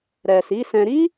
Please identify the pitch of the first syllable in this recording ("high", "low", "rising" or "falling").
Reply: low